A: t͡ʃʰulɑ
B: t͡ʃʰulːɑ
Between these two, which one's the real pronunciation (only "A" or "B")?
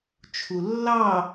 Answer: B